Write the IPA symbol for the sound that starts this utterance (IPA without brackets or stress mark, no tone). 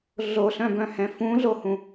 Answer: ɮ